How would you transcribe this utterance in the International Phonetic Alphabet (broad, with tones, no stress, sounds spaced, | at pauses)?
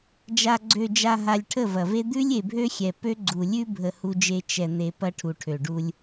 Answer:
d͡ʒ a˨ ɡ͡ǀ ø˨ d͡ʒ a˨ ɦ a˨ lʲ ʈʰ ə˦˨ v ɐ˨ v e˦ d̪ ʉ˦ lʲ e˨ bʱ ø˦ xʲ ɛ˨ p ø˦ ɡ͡ǀ u˨ lʲ ʉ˦ bʱ ə˨ h u˦ d͡ʒ e˦ t͡ʃ ɛ˨ n̪ e˨ p ɐ˦ ʈʰ u˨ ʈʰ ø˨ ɖ u˦ lʲ